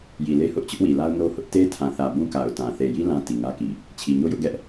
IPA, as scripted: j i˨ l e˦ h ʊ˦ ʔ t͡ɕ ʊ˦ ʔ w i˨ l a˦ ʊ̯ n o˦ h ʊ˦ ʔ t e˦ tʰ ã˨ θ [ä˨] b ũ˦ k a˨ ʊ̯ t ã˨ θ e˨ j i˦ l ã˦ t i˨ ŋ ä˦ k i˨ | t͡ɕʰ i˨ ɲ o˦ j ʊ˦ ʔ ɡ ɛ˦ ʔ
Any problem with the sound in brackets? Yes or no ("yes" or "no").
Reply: no